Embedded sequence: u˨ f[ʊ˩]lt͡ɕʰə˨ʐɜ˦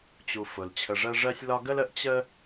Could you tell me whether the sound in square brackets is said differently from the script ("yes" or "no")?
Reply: no